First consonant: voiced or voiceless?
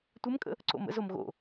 voiceless